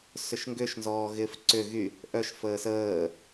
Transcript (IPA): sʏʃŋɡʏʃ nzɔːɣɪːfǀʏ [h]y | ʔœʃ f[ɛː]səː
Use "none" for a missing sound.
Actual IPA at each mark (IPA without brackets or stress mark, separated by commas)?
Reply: ɣ, əː